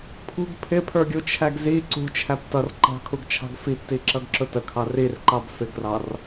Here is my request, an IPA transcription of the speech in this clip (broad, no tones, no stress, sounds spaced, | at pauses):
pʰ ṳ ɡ pʰ ɪ pʰ ə˞ ɡʲ u t͡ʃʰ æ ɡ z i ǀ ṳ t͡ʃʰ æ p t ʌ r ǃ ɑ̤ kʰ u ɡ t͡ʃʰ ɑ̤ ɡ f i p t i ǁ ʌ ɡ ǁ ʊ t ə kʰ ɑ r i r ǃ ɑ b f ɪ ɡ r ɑ r